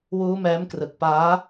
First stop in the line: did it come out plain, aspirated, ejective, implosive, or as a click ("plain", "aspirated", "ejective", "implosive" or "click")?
plain